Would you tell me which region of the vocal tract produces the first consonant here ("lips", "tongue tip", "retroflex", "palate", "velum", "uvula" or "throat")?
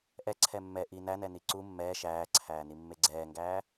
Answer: throat